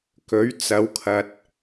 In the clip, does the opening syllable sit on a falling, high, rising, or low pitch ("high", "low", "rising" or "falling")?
rising